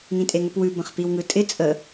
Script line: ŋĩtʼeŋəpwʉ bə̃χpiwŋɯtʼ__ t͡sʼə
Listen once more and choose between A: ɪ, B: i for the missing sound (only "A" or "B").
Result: A